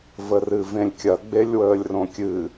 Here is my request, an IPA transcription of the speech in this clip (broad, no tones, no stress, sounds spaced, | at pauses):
v ə r ɨ v ẽ lʲ kʲ ɐ ɡ͡b e lʲ w əː lʲ r õ kʲ ɨ